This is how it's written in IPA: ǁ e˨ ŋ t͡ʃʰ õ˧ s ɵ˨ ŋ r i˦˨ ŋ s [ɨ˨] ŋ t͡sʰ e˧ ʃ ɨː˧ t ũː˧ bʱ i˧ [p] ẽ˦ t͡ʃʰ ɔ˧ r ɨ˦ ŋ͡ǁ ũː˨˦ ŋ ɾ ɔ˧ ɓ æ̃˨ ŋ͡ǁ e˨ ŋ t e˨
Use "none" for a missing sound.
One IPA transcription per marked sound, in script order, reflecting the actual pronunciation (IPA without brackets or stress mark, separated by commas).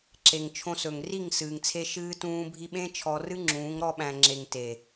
ɨː˨, ɓ